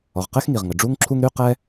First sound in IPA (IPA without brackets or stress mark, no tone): ɔ